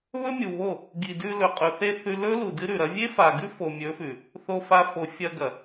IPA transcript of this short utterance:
β ɵ˦ mʲ u˨ β o˦˨ | ɡ i˨ d ʉ˧ l ɵ˨ qʼ ɵ˨ θ e˧ θ ʉ˧ l ɵ˦ l u˨ d ɨ˦ ɾ ʉ˨ ɾ ɐ˦ vʲ e˦ f a˨ ɡ ʉ˦ f o˨ mʲ ɵ˨˦ f ʉ˨ | θ o˧ f a˧ f o˨ fʲ ɐ˧ ɡ ɐ˨

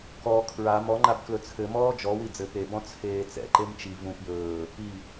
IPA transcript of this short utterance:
k ɔ kʰ ɹ a m ɔ ŋ͡ǃ a b k l ɵ t͡sʰ ɘ m ɔː d͡ʒ ɔ w i d͡z ɘ p e b ɔ̃ t͡sʰ eː t͡s ɛ̰ ǃ e m t͡ʃ i v ũ p j ɵː | i

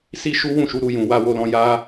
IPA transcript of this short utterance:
s i˦ ʃ u˦ w ũ˦˨ ʃ u˨˦ ɾ u˧ j ũ˨ w a˧ w o˧ l ɔ̃˧ j a˦

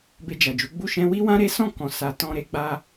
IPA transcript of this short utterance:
b e˧ d͡ʒ a˨ d͡ʒ u˨˦ ɡ͡b u˦˨ ʃ ɛ̃˧ w i˦ w ã˦ ɾ e˦ s ɔ̃˦˨ k ɔ̃˨ s a˨ t ɔ̃˧ ɾ e˧ ɡ͡b a˧

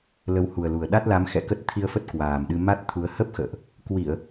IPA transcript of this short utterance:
l ə˨˦ w h u˨˩ ə̯ l u˨˩ ə̯ ɗ a˦˥ t̚ l a˨˦ m x ɛ̰˧˨ k ə˦˥ t̚ t̪ʰ i˧ ə̯ f ə˦˥ t̚ k w aː˨˩ m ɗ ɨ˧ m a˦˥ t̚ t̪ʰ u˨˦ ə̯ h ə˦˥ p̚ x ə̰ː˧˨ ʔ | k w i˧˩˨ ə̯

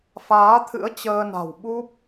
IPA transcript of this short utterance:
f aː˨˦ t̪ʰ ɨ̰˧˥ ə̯ t͡ɕ əː˧ n a̤˨˩ w ɓ u˦˥ p̚

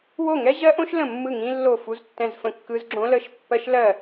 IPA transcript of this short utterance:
w o˥˩ ŋ ɛ˦˥ ʑ ɜ˦˥ ʔ õ˦˥ ʃ l ə̃˥˩ mː ɯ˥˩ ŋ ĩ˦˥ lː o˥˩ f u˦˥ z tː ɛ̃˥˩ z f ə̃˦˥ kː ɯ˦˥ z ɡ͡ǁ õ˦˥ l ə˦˥ ʃ pː ɜ˦˥ ʃ l ɜ˥˩

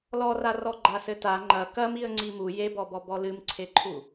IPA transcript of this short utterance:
l ɔ r a r ɔ ɡ͡ǃ a s ɘ t a ŋ͡ǃ ɐ k ɐ m i ə̯ ŋ͡ǀ i m u j e b ɔ b ɔ b ɔ l ɨ m ǀʰ e ǃʰ u

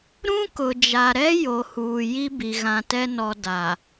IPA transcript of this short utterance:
ɾ ũ˦ k ʊ˨ d͡ʒ a˨ ɾ ɛ˦ j o˨ h uː˨ j i˦ b i˨ ɣ ã˨ t ɛ˦ n ɔ˨ d a˨

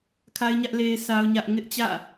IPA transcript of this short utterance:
kʰ a˦ ɪ̯ ɲ ä˦ ʔ l e˦ ɪ̯ sʰ a˦ ʊ̯ ɲ ä˦ ʔ ŋ ɪ˦ ʔ t͡ɕ ä̰˦˨

